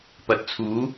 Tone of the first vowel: rising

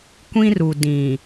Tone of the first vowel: high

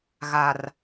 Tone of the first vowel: low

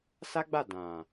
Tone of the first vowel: high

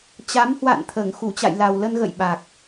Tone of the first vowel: rising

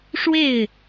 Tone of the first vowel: falling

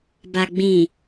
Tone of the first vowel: low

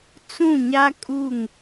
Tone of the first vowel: falling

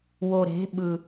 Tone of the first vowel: low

